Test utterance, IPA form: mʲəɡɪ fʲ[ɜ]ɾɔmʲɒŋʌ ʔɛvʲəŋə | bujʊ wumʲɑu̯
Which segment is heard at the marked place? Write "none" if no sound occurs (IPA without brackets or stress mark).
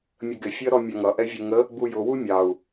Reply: ɜ